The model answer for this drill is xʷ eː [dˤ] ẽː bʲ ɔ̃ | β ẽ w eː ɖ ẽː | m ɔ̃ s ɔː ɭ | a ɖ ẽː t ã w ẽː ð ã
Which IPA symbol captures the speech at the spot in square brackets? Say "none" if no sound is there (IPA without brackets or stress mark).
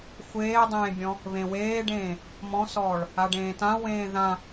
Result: dˤ